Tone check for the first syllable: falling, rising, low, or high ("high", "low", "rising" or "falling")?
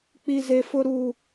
high